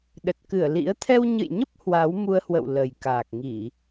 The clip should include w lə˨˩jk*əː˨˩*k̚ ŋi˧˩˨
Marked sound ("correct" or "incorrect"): incorrect